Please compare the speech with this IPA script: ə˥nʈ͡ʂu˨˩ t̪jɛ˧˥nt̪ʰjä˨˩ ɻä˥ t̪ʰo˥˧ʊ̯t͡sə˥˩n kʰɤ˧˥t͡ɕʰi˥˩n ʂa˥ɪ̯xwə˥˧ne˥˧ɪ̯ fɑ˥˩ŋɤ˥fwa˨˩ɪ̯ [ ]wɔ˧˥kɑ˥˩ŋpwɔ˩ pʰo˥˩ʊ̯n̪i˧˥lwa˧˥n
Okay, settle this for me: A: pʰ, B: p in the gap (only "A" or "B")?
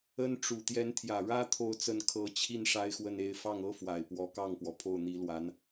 B